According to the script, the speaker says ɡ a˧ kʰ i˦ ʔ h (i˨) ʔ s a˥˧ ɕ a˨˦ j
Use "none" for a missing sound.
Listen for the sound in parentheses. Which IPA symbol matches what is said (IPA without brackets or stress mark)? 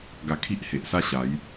e˨